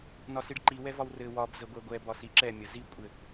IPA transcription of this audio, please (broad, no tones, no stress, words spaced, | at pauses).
nɒsiɖǃi wɛvɒwrɘ wɒb zəɡʷɛɡʷɛ bɒsiǁɛ mʲəzi kʷʼɘ